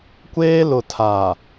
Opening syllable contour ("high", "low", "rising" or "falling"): high